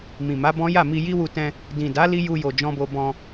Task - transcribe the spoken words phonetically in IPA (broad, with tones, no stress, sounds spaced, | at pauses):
m ĩ˨ m a˨˦ b ɔ̃˦ j a˦˨ m i˧ j i˦ w u˧ t ɛ̃˧ | d ĩ˨ d a˨˦ l i˦ j u˧ j o˨ d͡ʒ ɔ̃˧ b o˧ b ɔ̃˧